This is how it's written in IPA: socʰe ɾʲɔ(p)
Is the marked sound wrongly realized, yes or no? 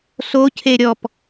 no